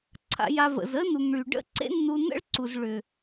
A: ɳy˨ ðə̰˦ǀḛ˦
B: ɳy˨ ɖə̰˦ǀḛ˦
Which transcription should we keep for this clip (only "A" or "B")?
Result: B